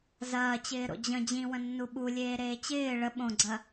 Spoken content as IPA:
zɐːt͡ɕɪːɾo̰ d͡ʑə̃ d͡ʑĩwə̃nːu ɓulʲeːɾeː t͡ɕɪː ɭə ɓõɡ͡ǀɐ

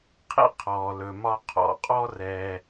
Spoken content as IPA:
qʰḛ˥qʰɔː˩lɵ˩ mɒ˧qʰɔ̰˩qʼɔ˥ rɛː˧

